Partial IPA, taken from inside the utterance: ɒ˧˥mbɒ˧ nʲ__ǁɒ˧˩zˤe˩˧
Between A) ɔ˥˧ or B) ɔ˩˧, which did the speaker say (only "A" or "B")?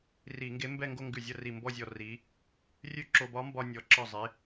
B